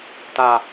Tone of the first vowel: low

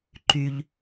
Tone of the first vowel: low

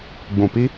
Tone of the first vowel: low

